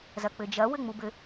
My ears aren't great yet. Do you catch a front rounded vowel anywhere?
no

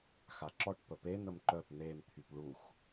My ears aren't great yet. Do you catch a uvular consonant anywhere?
no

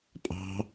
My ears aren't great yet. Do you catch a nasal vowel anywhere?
no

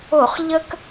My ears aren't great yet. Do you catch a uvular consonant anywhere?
yes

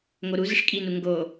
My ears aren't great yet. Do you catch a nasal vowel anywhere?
no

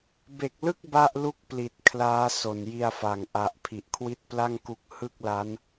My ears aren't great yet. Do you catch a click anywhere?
no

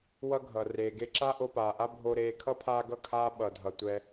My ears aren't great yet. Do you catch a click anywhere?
yes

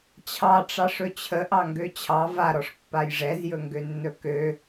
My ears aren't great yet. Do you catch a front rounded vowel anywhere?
yes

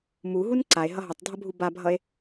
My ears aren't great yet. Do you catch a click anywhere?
yes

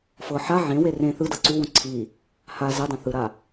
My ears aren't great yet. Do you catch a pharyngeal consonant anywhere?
yes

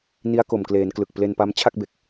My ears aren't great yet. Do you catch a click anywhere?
no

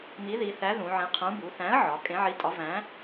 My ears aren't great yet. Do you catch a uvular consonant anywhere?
yes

